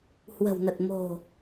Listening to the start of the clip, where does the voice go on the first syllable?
low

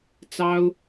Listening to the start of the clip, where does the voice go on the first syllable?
high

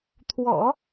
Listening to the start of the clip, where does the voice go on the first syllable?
low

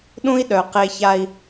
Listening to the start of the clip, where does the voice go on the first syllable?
high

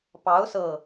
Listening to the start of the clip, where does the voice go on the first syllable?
rising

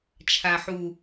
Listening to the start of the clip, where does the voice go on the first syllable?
low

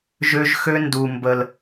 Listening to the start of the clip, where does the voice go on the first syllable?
high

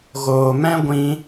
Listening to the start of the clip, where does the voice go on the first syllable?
low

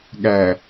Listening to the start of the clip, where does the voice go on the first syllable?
low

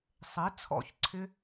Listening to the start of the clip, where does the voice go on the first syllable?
rising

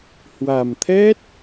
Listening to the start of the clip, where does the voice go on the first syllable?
low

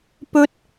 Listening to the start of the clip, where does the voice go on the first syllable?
high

